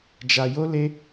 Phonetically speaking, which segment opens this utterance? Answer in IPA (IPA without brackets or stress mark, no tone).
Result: d͡ʒ